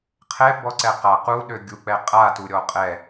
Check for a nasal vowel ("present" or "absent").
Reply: absent